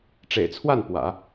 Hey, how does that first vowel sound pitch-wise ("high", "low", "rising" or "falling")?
low